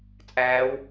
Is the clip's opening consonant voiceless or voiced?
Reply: voiceless